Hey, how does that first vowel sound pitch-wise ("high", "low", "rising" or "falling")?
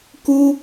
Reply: high